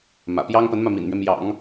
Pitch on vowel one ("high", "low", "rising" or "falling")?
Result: low